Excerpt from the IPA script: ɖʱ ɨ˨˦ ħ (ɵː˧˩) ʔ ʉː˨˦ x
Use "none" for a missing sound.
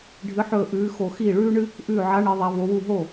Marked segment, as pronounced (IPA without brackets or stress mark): ɵː˧˩